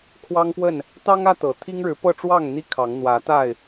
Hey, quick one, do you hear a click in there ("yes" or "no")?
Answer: no